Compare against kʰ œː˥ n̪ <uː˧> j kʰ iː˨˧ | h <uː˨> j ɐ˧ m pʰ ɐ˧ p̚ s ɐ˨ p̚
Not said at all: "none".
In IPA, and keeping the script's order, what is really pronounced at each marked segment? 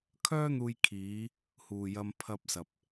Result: uː˧, uː˨

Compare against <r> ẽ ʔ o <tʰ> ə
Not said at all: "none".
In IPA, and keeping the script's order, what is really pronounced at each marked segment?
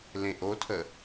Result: l, tʰ

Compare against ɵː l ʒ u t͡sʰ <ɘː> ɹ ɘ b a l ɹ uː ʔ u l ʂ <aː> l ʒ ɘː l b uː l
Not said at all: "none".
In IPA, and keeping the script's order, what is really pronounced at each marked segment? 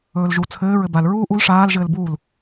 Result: ɘː, aː

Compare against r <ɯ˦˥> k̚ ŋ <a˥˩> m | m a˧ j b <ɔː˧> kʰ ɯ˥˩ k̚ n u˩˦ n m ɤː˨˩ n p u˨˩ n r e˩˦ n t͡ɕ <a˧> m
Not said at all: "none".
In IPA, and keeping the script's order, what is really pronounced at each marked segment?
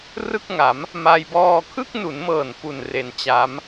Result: ɯ˥˩, a˩˦, ɔː˧, a˦˥

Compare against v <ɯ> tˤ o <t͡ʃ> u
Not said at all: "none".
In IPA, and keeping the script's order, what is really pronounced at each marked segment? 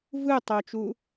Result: ɯ, t͡ʃ

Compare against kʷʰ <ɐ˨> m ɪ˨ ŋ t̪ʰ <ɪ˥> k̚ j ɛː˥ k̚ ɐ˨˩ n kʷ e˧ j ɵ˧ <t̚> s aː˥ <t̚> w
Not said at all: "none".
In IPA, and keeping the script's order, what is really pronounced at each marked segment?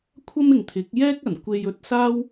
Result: ɐ˥, ɪ˨˥, t̚, none

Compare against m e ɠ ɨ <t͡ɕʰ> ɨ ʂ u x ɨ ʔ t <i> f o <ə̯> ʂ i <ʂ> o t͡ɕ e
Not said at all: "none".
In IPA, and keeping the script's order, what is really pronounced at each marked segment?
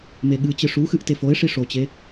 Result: t͡ɕ, e, ɪ̯, ʂ

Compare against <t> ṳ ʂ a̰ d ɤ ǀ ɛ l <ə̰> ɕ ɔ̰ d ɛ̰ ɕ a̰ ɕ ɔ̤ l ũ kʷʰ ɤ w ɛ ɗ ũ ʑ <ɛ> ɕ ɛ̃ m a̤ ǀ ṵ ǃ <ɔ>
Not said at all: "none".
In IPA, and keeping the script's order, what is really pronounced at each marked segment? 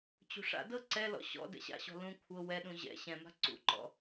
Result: t͡ɕ, ɔ̰, ɛ̰, ɔ̰

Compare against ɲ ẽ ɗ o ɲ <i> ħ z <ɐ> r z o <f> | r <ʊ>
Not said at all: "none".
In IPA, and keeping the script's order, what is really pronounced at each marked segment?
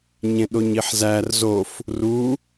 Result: i, æ, f, u

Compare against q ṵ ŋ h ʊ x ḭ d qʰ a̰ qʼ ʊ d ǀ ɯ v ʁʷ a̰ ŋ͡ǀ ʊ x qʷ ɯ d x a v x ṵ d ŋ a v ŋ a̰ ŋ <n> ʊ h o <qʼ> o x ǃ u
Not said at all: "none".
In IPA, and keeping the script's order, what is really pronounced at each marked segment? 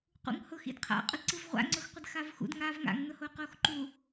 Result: n, q

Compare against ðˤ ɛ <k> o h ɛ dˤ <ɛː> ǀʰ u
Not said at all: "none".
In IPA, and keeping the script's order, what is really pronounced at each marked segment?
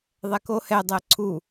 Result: k, ɛ

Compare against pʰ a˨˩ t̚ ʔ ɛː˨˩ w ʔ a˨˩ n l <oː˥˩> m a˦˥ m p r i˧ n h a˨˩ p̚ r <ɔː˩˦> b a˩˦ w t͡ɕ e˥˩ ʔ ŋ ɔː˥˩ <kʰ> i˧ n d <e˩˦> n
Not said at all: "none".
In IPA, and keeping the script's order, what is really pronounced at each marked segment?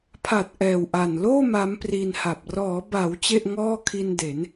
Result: oː˥˩, ɔː˩˦, kʰ, e˩˦

